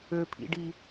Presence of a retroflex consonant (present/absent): present